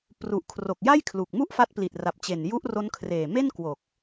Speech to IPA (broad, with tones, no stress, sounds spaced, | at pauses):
p r u˨˩ ʔ kʰ r o˨˩ k̚ j a˥˩ j kʰ l u˨˩ k̚ m u˥˩ ʔ f a˦˥ t̚ p l i˨˩ t̚ r a˨˩ p̚ t͡ɕ e˨˩ n j u˦˥ ʔ r o˦˥ n kʰ r eː˨˩ m e˥˩ n k w o˨˩ k̚